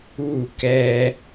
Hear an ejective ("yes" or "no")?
no